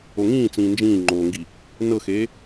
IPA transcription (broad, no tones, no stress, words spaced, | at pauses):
oŋĩːt͡sĩː nd͡ʒĩːŋ͡ǃoːŋɡi | nɤxeː